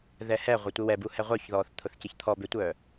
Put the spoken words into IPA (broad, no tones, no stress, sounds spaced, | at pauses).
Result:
ð ɛ h ɛ ʁʷ œ tʷ ɪ w ɛ b u h ɛ ʁʷ œ ç ð ɔː θ t̪ʰ ʊ θ c ɪ ç t̪ʰ ɔ b ʏ tʷ œː